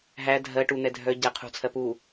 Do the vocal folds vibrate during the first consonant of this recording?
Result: yes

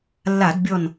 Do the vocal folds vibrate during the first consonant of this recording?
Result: yes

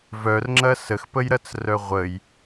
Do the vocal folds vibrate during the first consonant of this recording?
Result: yes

